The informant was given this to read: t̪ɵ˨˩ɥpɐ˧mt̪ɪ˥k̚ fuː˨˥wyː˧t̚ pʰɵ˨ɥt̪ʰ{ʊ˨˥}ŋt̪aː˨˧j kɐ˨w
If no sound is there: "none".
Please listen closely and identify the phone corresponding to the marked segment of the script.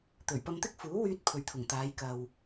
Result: ʊ˨˩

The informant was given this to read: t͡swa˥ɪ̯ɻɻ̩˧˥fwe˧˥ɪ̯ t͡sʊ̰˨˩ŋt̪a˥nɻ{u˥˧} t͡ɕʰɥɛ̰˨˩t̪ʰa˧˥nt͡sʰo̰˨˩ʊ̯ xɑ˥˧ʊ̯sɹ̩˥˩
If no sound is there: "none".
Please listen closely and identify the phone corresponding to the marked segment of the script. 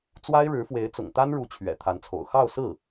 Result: u˧˥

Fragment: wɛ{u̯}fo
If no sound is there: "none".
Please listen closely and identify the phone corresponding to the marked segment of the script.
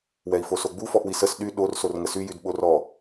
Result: i̯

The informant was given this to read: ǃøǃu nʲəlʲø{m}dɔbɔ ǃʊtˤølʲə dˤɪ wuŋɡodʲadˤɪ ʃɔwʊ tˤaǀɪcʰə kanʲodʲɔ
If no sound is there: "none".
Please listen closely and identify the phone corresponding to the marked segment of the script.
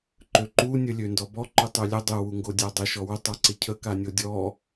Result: n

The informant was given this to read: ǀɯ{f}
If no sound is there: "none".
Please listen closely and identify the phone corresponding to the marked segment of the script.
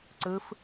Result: f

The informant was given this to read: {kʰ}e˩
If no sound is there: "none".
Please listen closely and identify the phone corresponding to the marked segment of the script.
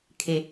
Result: kʰ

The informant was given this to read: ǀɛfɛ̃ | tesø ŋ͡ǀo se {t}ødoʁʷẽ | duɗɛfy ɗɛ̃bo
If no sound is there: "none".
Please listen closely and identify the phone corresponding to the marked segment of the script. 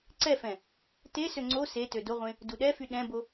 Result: t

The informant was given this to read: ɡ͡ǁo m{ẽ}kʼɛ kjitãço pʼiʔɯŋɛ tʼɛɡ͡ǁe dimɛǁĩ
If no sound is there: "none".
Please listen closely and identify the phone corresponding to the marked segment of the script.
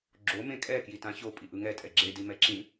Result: ẽ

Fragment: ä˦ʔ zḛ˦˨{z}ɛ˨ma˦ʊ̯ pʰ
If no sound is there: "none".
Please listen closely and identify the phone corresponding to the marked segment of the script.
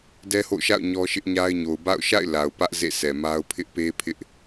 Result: s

